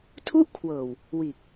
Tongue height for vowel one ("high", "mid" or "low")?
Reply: high